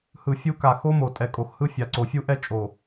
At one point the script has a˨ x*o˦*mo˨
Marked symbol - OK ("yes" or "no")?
yes